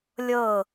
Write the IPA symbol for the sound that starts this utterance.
lʲ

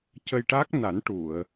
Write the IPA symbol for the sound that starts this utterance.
c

